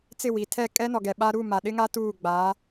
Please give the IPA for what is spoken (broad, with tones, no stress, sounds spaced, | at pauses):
t͡s ɪ˦˨ w i˨ tʰ ɛ˦˨ kʼ ɛ˦ n ɔ˨ ɡ ɛ˨ ɓ a˦ ɾ u˦˨ m a˨ ɗ ɪ˦ ŋ a˦ t uː˦˨ ɡ͡b aː˨˦